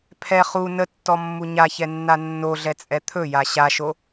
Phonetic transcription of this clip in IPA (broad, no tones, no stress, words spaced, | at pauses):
pʰɛ χu nətːɔmːu ɲaçɛnːa nːoɮɛt͡sʼɛ t̪ʰɵja ɕaʃo